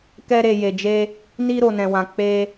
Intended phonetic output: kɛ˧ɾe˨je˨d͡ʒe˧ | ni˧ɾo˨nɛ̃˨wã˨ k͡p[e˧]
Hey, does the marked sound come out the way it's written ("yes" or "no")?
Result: yes